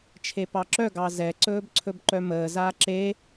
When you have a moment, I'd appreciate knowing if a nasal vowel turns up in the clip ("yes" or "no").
no